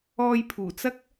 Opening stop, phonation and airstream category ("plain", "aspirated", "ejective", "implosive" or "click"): aspirated